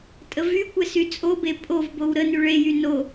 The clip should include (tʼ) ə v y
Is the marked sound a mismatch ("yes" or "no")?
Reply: no